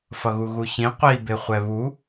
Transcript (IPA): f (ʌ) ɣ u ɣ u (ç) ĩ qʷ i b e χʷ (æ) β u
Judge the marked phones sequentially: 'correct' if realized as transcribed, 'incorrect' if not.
correct, correct, incorrect: ɛ

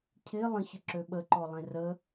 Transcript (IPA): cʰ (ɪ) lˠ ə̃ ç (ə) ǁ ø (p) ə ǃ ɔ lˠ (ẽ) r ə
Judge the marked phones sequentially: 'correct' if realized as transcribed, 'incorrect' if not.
correct, correct, incorrect: ɓ, correct

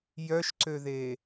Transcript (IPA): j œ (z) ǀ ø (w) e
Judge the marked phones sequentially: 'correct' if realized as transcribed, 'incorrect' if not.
incorrect: ʃ, incorrect: ð

